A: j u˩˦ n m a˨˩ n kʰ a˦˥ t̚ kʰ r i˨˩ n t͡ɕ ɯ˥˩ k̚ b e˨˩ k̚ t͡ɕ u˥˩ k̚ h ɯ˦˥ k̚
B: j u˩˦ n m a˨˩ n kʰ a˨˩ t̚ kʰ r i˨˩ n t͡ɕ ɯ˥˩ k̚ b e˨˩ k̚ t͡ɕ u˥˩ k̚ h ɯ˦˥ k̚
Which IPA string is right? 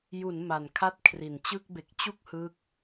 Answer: A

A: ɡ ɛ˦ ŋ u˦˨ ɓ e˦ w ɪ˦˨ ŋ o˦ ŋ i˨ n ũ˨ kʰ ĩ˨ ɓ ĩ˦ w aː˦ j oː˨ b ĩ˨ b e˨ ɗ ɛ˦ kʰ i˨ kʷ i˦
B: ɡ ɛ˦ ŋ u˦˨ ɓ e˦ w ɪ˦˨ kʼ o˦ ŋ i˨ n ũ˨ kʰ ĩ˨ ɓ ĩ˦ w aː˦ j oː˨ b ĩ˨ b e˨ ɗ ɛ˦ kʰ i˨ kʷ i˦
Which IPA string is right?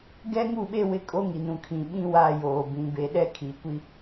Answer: B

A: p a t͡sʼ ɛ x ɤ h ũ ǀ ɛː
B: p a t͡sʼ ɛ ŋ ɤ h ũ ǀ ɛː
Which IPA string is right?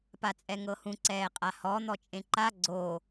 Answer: B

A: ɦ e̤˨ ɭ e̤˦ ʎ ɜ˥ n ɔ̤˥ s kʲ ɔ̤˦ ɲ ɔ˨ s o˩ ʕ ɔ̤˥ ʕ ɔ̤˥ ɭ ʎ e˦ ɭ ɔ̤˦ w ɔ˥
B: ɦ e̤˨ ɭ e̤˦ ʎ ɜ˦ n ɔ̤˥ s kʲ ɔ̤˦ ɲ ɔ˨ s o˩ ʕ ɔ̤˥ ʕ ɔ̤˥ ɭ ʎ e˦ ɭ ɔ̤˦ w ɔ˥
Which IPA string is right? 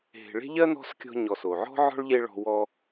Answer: B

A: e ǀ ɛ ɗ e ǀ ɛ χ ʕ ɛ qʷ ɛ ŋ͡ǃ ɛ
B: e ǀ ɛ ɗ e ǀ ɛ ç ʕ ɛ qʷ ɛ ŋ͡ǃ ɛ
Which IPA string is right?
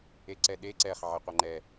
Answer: A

